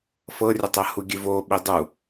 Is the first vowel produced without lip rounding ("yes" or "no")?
yes